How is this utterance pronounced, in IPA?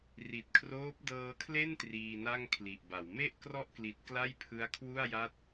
ri˨˩t̚kʰroː˦˥p̚ dɤː˧kʰle˥˩n triː˧na˥˩ŋkʰli˨˩ʔba˩˦w me˥˩ʔ krɔ˥˩ʔkli˨˩t̚ kla˥˩jpʰɯ˦˥a̯kʰwu˥˩a̯ja˥˩t̚

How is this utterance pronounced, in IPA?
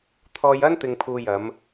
t̪ʰɔː˧jɐ˥n t̪ɪ˧ŋpʰuː˧ jɐ˨˧m

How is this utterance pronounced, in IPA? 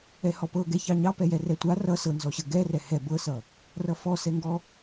ɛhɔpɤ ɡɛçɑɲɑ pɛjɛrɛtʷa rʌ sɤnzɔɕə ɡɛrɛ hɛ bɤsʌ | rʌfɔsɛŋɡɔ

